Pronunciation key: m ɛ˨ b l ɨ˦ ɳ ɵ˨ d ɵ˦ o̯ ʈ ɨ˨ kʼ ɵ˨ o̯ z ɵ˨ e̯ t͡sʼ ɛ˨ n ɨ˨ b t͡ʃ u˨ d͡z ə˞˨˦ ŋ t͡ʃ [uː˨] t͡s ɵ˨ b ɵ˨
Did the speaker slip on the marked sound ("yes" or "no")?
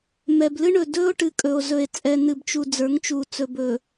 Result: yes